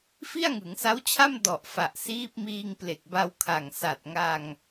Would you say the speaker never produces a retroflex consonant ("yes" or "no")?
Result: yes